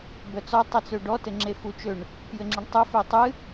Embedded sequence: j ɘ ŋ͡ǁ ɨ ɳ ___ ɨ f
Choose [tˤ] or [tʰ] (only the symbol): tˤ